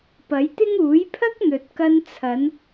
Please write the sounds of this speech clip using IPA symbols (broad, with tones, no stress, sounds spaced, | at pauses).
p ɐ˨˥ j t̪ ɪ˥ ŋ uː˨˥ j pʰ ɐ˥ k̚ n̪ ɵ˨ t̚ k ɐ˧ n t͡sʰ ɐ˨˧ n